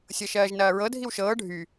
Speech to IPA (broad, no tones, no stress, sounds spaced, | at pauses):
sʲ ɤ ʃ ɜː ʒ n ɐː ɹ ɤ dʱ i w ʃ ɤː ɖʱ y